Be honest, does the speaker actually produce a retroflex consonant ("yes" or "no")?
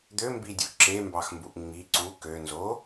no